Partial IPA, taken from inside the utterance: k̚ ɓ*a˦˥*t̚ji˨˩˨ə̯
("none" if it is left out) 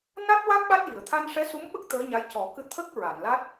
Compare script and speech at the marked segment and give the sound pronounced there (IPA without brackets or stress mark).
a˦˥